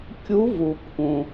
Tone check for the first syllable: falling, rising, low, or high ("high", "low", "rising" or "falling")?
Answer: rising